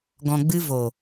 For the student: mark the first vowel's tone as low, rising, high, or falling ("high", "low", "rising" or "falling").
low